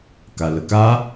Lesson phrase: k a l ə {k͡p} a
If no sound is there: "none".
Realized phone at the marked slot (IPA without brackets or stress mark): k